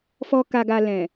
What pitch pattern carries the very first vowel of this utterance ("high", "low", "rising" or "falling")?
low